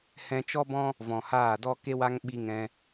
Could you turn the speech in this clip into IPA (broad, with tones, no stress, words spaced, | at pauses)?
hɛ̃˧t͡ʃɔ˦bɔ̃˦ | vɔ̃˨haː˦˨dɔ˦ ke˧wa˧ŋ ɓi˧ŋɛ̃˧